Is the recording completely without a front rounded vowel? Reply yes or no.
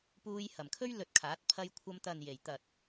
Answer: yes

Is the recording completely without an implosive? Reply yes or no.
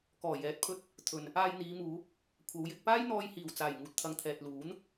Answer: yes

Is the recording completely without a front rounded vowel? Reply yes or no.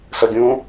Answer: yes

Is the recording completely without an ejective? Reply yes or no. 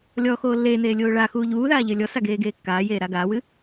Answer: yes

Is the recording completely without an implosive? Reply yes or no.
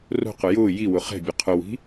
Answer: yes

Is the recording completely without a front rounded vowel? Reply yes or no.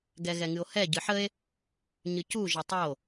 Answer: yes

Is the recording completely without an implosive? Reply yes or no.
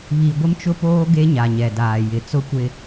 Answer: yes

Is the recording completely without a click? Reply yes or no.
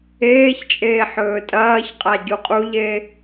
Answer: yes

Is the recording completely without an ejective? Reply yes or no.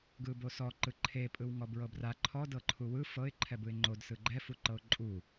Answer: no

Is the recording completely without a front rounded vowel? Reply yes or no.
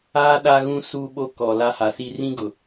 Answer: yes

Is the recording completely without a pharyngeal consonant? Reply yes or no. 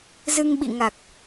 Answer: yes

